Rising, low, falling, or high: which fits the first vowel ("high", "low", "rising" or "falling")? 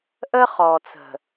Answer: high